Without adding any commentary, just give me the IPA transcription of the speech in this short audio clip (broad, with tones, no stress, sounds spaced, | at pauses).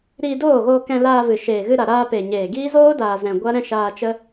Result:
ɾ iː˧ d oː˦˨ ɣ oː˧ k ɛ̃˧ l aː˧ v ɨ˨ ʃ eː˨ ɣ ɨ˧ ɾ a˨ ɾ aː˧ p e˨ ɲ eː˨ ɡ iː˦ z oː˦ d aː˨ z ɛ̃˨ ɡʷ a˦ ɾ ɛ̃˦ ʃ aː˧ t͡ʃ ə˦